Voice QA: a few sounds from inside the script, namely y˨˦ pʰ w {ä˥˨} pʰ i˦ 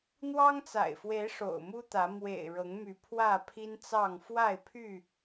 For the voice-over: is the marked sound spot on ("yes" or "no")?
yes